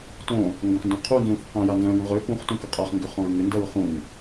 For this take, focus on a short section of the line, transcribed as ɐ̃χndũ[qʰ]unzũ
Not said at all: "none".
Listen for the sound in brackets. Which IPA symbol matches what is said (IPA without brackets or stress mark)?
qʰ